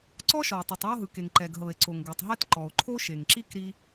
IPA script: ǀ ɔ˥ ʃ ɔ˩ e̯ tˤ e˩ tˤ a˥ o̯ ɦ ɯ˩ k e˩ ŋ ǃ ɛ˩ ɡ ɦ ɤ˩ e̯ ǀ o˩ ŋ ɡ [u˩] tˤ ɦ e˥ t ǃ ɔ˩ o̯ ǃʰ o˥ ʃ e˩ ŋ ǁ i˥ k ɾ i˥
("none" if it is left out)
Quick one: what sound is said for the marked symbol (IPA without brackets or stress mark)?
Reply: u˩